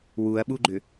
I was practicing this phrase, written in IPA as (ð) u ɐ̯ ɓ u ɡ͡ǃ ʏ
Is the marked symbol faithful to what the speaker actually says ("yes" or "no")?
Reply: no